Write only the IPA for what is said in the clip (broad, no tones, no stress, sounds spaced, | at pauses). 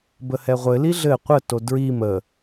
b ə h ɛ ʁʷ ɘ l i ɮ ɘ qʷ ə t o d ɹ i m ə